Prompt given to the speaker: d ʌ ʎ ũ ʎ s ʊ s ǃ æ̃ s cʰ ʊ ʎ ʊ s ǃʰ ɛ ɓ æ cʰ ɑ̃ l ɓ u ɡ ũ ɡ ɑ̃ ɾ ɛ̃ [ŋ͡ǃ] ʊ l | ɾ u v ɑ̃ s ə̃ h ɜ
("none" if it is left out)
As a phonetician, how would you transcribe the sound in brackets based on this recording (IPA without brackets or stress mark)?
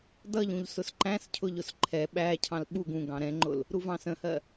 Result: ŋ͡ǃ